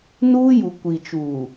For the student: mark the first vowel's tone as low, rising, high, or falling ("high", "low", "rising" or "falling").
high